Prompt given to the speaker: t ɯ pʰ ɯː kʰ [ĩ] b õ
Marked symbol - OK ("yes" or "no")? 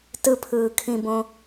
yes